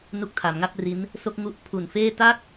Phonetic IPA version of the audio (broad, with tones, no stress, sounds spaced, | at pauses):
n u˦˥ k̚ tʰ a˩˦ m ŋ a˥˩ p̚ r i˦˥ n | s o˥˩ k̚ ŋ u˦˥ ʔ pʰ u˨˩ n f eː˥˩ t a˥˩ k̚